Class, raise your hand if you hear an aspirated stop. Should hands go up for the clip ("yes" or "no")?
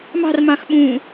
no